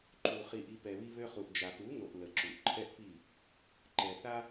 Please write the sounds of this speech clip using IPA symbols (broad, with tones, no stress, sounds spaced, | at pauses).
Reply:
ǃ u˨ χ i˧ ʔ i˧ p ɛ˨ β i˧ β ø˧ χ u˨ ʔ d͡ʒ a˨ p u˨˦ ŋ o˨ ʔ l ə˨ ǁ u˨ ʔ ǃʰ ɛ˦ ʔ p i˦˨ | ǃ ɛ˨ θ a˦